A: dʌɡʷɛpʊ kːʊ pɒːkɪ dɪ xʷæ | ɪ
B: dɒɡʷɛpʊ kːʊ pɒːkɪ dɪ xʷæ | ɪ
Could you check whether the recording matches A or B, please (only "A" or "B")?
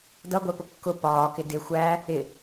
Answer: A